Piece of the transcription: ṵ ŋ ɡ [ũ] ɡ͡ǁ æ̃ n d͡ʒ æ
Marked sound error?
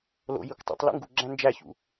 yes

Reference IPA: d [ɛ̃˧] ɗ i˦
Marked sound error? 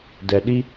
yes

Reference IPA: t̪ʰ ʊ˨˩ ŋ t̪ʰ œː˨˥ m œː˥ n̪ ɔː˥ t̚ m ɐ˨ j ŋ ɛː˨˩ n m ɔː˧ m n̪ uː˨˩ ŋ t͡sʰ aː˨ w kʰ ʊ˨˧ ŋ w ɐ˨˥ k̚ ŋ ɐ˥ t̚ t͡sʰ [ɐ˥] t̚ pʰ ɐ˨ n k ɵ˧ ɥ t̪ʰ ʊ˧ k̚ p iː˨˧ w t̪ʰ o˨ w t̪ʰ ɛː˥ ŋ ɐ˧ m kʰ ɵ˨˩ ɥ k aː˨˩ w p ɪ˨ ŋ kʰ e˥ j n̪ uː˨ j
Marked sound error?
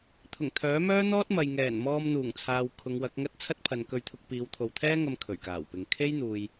no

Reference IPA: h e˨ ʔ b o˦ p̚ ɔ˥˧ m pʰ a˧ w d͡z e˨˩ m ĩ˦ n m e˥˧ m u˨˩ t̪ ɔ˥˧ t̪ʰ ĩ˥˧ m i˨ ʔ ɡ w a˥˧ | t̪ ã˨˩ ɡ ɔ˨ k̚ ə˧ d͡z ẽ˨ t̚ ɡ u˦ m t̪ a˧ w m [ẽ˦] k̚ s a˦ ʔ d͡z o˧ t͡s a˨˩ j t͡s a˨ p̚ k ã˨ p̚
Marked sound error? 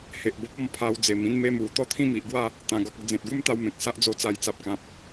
yes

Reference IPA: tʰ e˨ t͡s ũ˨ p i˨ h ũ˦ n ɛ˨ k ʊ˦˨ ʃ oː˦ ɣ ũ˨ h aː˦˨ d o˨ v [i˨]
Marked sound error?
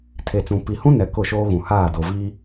yes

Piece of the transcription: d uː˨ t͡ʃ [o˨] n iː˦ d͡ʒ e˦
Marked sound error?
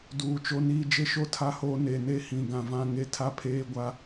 yes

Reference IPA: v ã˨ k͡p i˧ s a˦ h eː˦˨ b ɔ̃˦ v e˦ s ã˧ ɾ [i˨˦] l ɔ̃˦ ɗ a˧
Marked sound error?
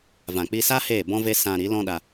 no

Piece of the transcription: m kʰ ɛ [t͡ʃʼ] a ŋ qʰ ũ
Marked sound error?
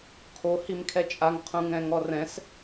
no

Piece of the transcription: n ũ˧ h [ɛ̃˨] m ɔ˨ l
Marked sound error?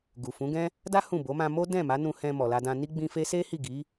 yes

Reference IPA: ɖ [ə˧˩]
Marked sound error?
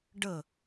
no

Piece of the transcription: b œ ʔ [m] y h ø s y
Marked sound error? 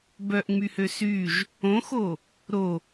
yes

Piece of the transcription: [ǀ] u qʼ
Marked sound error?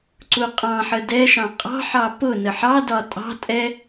no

